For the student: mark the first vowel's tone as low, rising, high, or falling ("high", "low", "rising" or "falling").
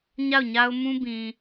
falling